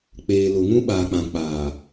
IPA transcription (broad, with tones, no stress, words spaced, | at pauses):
k͡peː˨lʊ˨ ŋũ˦ɓaː˨k͡pã˨ k͡paː˨